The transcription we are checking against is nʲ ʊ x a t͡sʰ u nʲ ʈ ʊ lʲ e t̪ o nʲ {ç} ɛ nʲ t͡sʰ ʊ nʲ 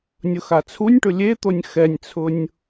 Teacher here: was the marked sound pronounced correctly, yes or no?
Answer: no